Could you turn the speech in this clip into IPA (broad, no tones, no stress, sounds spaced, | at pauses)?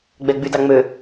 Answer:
ɡ͡b ɛ ɡ͡b y d ɑ ŋ͡m ø